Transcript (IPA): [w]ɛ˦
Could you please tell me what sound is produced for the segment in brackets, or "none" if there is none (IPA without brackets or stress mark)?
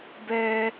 b